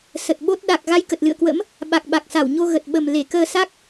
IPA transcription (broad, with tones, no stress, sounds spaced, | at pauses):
s ə˨˩ t̚ ɓ o˦˥ t̚ ɗ a˨˩ k̚ ɣ a˧ j k ə˨˩ t̚ l ɨ̰˧˨ ə̯ k w ə̰˧˥ m | ɓ a˨˩ k̚ ɓ a˨˩ k̚ s a˧˩ w ɲ o˧ ɣ ə˨˩ t̚ ɓ ə˨˩ m l e˧˩ k əː˧ s a˦˥ k̚